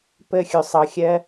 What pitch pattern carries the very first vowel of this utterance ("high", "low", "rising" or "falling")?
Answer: falling